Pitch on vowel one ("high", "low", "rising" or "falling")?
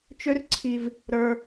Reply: high